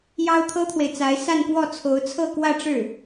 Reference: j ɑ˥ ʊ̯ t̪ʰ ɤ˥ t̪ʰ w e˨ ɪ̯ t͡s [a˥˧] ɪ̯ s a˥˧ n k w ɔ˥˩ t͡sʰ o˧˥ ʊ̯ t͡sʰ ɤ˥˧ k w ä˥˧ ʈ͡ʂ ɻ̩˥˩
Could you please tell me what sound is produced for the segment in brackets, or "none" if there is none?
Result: a˧˥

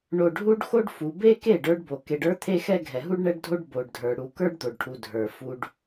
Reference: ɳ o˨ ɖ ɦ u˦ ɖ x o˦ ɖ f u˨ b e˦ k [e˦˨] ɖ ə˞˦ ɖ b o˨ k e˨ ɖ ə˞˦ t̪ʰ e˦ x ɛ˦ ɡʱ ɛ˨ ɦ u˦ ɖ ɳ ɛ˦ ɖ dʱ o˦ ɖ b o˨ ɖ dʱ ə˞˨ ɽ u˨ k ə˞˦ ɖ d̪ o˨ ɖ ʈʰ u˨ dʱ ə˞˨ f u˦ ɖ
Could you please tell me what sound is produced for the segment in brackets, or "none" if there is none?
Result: e˦˨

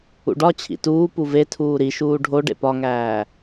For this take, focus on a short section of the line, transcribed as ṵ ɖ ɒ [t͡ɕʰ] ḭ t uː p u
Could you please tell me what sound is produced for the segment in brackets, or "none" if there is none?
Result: t͡ɕʰ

